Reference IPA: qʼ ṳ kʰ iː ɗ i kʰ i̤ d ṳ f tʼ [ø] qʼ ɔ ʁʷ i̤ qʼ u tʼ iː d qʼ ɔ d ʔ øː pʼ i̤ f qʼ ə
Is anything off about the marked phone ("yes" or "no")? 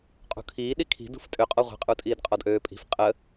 no